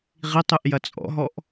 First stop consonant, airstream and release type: plain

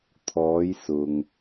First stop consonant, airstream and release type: aspirated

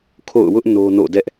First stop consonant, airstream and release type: aspirated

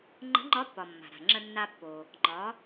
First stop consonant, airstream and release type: click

